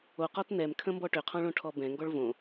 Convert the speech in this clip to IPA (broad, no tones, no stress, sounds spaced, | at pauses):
o q ɔ t n ɛ m kʰ ə̃ m b ɔ ʈ ʏ qʰ ɔ̃ ɭ õ ʈʰ ɔ b ɛ̃ ŋ ɡ ɔ ɭ v õ